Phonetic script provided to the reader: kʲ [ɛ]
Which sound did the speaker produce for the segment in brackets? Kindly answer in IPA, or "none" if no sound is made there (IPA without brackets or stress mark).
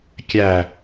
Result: æ